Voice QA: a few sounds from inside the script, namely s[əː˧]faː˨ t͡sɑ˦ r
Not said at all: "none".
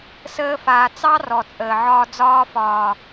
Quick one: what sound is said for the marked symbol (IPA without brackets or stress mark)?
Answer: əː˧